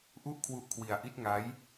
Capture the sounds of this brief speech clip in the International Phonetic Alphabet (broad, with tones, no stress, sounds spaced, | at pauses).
ʔ u˥˩ ʔ kʰ w u˦˥ ʔ kʰ w i˧ a̯ ʔ i˦˥ t̚ ŋ a˦˥ j